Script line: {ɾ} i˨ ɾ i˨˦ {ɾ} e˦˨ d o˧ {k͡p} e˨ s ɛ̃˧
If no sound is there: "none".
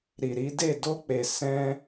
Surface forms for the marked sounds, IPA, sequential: ɾ, d, k͡p

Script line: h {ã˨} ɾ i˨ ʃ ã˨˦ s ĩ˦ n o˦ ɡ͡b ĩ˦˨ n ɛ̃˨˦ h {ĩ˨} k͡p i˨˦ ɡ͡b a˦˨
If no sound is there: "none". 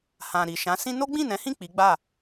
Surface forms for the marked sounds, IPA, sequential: ã˨, ĩ˦˨

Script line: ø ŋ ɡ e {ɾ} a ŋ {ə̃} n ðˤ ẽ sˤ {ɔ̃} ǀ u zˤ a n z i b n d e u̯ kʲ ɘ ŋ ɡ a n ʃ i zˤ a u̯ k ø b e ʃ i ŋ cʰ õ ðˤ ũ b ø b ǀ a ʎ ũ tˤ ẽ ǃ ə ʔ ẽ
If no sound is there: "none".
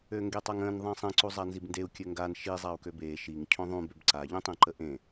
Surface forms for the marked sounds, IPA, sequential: tˤ, ə̃, ə̃

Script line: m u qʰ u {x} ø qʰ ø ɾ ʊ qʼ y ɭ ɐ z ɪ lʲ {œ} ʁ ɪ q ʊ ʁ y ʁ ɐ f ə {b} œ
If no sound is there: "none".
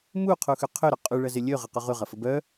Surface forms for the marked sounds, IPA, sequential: x, ø, b

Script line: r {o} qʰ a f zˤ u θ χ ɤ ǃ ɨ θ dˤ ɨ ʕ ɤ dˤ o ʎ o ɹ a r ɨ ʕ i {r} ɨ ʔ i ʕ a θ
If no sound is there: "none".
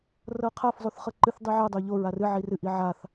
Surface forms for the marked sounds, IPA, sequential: ɤ, r

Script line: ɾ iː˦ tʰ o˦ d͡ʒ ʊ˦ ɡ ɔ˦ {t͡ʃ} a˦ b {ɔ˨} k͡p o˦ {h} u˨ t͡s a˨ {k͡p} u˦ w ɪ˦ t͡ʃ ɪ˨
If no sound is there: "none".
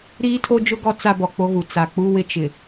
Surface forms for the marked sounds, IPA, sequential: t͡s, ɔ˨, ɣ, k͡p

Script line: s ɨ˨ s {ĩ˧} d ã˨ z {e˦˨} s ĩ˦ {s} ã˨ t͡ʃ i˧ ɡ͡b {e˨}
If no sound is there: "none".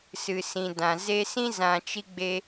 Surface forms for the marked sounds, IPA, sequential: ĩ˨, e˧, z, e˧

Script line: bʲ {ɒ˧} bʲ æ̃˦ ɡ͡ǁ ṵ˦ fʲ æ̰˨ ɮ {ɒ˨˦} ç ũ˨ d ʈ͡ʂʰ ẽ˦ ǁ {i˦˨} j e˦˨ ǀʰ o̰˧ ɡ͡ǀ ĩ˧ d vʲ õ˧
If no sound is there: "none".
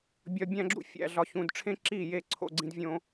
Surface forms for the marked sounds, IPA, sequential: ɒ˧, ɒ˧, i˦˨

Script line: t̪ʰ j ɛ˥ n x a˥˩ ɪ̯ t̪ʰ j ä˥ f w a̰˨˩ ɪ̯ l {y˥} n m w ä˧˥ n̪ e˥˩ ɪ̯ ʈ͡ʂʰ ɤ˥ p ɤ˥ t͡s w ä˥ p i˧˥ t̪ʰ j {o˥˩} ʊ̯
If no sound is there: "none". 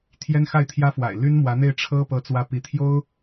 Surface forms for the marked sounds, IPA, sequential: y˥, o˥

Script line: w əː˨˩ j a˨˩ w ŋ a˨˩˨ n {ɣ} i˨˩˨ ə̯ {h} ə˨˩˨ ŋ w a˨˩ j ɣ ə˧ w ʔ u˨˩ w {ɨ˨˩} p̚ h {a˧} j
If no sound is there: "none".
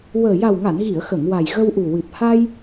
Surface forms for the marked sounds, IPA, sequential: ɣ, x, ɨ˨˩, a˧

